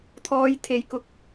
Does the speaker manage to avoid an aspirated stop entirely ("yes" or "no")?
no